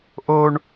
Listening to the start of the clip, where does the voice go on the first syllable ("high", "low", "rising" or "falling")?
high